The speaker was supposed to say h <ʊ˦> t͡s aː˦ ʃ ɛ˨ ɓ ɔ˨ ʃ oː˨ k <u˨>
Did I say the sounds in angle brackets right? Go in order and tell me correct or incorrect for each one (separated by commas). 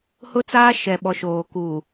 correct, correct